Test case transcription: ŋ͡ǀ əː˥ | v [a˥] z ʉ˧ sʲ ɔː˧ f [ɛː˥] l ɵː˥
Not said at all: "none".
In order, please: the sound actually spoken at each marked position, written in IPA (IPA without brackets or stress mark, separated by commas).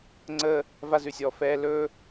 a˥, ɛː˥